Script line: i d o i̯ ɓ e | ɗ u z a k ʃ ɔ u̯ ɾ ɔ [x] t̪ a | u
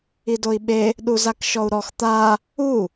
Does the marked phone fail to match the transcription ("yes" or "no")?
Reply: no